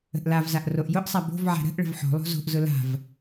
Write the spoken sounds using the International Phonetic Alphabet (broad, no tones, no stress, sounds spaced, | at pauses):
ə̤ ʔ l a v z a ʔ r o ʔ j ʊ ʔ sˤ a b o̤ v ʕ a̤ ɾ ə̤ ʔ ɭ ə̤ v ħ o̤ lˠ o̤ z o̤ ʔ z ʊ l a̤ v